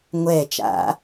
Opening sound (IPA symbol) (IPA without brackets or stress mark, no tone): ŋʷ